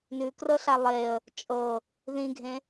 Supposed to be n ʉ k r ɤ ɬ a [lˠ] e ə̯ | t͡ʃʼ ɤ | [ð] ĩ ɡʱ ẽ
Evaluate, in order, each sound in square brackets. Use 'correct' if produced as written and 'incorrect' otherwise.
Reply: correct, correct

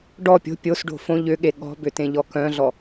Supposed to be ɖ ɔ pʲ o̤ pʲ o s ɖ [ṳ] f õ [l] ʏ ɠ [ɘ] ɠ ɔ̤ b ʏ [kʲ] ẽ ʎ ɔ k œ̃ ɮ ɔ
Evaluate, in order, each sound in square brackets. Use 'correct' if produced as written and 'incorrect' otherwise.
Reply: incorrect, incorrect, incorrect, incorrect

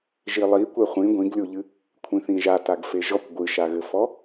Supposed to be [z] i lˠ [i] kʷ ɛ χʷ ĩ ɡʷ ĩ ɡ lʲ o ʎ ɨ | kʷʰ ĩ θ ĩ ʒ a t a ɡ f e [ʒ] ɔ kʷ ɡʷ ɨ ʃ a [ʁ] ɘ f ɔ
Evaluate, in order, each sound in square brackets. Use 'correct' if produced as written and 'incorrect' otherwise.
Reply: incorrect, correct, correct, incorrect

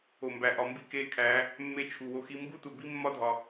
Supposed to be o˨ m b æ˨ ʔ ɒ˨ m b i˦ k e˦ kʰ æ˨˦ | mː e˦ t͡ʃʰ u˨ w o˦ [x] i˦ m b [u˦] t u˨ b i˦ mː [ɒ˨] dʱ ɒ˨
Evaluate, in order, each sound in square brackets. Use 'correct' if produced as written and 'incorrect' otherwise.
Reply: correct, correct, incorrect

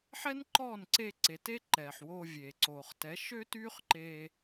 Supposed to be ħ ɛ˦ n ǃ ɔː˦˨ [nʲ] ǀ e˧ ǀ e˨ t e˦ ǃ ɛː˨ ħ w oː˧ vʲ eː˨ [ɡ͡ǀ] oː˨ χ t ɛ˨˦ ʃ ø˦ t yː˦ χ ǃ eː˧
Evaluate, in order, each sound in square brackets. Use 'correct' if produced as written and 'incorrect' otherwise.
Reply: incorrect, incorrect

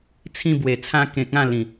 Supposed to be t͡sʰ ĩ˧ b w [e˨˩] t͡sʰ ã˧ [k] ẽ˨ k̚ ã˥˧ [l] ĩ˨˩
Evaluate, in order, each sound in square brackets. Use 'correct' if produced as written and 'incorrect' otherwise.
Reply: correct, correct, correct

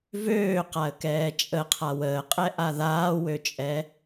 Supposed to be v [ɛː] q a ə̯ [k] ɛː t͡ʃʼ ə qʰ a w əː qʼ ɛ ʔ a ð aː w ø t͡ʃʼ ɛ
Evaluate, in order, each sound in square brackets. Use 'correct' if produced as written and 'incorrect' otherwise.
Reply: incorrect, correct

